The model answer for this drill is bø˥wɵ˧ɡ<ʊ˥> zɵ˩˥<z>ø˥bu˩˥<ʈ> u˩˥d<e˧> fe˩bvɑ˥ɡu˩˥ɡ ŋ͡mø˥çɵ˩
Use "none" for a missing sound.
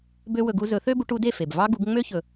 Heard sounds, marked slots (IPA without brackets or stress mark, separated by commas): u˥, θ, ʈ, e˥˩